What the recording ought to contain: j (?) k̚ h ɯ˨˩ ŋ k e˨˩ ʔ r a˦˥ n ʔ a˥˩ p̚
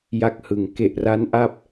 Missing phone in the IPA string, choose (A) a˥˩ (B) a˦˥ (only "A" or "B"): A